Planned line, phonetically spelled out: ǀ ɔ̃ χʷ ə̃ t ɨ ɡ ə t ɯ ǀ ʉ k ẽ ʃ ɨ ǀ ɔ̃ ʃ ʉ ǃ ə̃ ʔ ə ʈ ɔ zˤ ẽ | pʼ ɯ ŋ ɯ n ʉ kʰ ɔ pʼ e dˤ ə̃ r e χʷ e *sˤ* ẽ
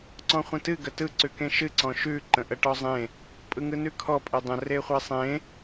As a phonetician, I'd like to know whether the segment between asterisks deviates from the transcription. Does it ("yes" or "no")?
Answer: no